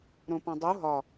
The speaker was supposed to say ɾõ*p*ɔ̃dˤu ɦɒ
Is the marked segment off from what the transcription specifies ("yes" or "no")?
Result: no